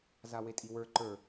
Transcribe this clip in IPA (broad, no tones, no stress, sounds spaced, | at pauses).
z a w e tʼ i w ə˞ ǃ ə˞